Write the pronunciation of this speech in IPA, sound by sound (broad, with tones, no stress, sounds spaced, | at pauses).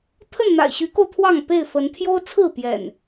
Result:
t̪ʰ ə˥˨ n n̪ a̰˨˩ ɪ̯ ɕ y˨˦ k o˧ ʊ̯ t̪ʰ w ɑ˥˨ ŋ p e˥˨ ɪ̯ f ə˨˦ n t̪ʰ j o˦ ʊ̯ t͡sʰ ɹ̩˥˨ p j ɛ̰˨˩ n